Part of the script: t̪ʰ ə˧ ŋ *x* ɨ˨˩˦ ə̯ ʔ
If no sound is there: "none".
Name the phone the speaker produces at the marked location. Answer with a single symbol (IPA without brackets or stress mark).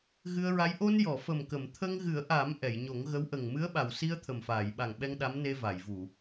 ɣ